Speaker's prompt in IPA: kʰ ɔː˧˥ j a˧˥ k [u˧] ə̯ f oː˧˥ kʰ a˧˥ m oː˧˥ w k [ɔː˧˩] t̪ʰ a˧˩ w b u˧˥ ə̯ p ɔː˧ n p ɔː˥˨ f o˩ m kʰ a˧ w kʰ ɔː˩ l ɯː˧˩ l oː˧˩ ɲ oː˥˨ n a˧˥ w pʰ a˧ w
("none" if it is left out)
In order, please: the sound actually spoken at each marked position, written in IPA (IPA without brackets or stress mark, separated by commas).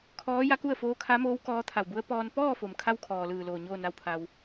u˥˨, ɔː˧˥